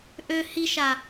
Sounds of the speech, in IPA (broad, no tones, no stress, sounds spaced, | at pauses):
ʔ ø h i ʃ a